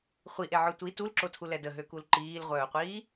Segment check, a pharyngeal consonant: present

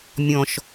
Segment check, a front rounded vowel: absent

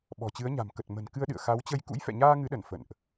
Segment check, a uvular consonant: absent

